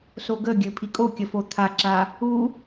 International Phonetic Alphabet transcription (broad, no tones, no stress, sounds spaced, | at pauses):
s o ɡ ə ɡʲ ɘ pʰ i kʼ o kʲ ə f o t̪ʰ a ǁ a | u